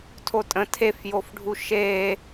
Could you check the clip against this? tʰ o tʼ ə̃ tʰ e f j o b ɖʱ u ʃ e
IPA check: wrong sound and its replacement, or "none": b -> f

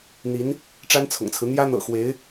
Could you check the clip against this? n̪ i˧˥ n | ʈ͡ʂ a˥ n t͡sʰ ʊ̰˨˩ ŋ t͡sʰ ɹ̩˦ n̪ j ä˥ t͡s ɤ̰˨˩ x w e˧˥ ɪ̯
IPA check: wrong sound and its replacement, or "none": t͡s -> n̪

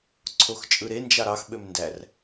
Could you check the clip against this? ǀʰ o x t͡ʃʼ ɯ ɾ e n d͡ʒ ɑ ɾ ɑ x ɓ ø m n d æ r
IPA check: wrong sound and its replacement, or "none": none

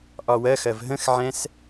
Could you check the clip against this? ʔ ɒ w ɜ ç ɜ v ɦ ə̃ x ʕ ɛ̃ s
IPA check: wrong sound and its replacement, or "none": ç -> x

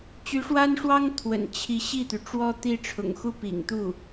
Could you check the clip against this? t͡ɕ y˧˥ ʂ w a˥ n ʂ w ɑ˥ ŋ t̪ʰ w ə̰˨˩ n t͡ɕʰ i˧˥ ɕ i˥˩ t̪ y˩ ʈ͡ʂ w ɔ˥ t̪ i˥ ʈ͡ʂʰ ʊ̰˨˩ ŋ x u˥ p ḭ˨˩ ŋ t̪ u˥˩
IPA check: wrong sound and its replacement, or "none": none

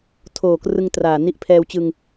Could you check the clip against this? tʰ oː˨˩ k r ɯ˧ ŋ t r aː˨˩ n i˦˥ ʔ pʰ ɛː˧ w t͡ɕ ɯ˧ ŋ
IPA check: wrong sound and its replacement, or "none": none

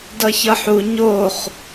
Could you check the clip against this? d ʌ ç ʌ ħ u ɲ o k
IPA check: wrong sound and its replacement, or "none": k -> χ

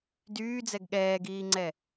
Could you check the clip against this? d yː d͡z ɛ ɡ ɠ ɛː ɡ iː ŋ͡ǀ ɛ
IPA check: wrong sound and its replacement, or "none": none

